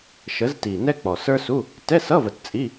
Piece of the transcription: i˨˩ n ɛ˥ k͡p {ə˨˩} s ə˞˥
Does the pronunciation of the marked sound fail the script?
yes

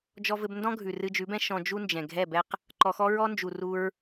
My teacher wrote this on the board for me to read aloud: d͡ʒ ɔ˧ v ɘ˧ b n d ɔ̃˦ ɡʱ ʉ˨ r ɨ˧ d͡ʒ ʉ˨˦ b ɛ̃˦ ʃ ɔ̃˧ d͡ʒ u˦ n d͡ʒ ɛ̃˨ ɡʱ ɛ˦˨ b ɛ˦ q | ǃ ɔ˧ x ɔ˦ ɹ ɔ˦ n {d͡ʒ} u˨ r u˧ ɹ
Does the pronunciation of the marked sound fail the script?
no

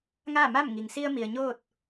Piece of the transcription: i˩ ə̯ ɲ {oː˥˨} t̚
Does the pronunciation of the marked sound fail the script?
no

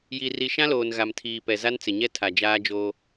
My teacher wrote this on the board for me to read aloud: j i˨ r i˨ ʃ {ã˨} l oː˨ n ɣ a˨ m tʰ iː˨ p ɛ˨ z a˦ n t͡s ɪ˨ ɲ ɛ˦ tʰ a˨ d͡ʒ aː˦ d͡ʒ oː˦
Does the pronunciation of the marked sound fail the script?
yes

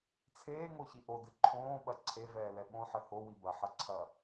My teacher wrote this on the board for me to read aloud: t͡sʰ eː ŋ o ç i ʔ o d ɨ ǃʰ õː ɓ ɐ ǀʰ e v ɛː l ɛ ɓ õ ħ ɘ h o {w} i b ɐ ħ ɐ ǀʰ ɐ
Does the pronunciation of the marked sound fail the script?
no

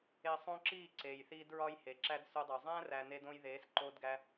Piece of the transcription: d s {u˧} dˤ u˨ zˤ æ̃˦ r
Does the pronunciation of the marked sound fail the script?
no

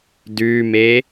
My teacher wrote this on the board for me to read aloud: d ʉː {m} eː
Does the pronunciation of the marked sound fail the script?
no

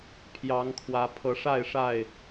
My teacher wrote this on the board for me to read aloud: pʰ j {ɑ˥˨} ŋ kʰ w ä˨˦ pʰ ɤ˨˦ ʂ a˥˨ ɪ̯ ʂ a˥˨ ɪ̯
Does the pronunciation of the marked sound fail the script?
yes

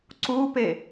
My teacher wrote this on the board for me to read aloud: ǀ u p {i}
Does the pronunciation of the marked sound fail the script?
yes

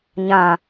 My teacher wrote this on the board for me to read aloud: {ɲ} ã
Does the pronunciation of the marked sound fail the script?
no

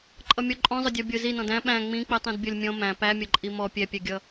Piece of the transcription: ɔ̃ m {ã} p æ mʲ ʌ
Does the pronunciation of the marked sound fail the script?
yes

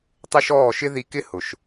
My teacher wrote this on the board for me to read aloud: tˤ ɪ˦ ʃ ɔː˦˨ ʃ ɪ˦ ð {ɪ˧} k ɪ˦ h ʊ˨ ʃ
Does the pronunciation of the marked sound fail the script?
yes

